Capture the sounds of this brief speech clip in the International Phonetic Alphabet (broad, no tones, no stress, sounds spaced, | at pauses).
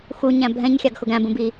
x u ɲ æ̃ bʱ ɛ̃ ɲ xʲ ɑ ɡ x ʊ ɡ æ̃ b ũ b i